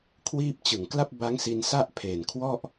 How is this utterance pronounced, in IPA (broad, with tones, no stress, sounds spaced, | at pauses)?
kʰ w iː˥˩ p̚ t͡ɕ ɯ˨˩ ŋ k l a˥˩ p̚ b a˦˥ ŋ s i˧ n s a˥˩ ʔ pʰ eː˨˩ n kʰ w ɔ˥˩ ʔ